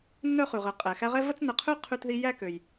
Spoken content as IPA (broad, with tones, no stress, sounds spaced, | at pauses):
n œ˥ χ ʉ˩ ʁ ə˨ qʼ ɛ˩ x æ˦ ʁ ɛ˥ v ə˥ t͡s n ə˨ qʰ ø˥ qʰ ʉ˦ t ð i˦ j æ˥ k ø˩ j